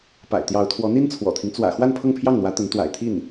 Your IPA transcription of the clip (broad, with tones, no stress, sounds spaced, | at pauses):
p a̰˨˩ ɪ̯ t̪ j ɑ˧˥ ʊ̯ t̪ʰ w ɔ˧˥ n̪ i˥ n t͡sʰ w ɔ̰˨˩ t̪ʰ i˦ ŋ t͡s w ä̰˨˩ x w a˥˧ n pʰ ɤ˥˧ ŋ pʰ j ɑ˥˩ ŋ n̪ w ä˧˥ t̪ ə˧˥ n t̪ w a̰˨˩ ɪ̯ t̪ʰ i˥˩ n